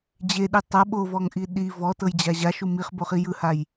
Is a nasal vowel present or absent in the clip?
absent